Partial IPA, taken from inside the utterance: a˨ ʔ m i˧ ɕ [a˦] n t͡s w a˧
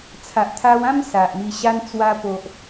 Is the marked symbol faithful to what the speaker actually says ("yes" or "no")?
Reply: no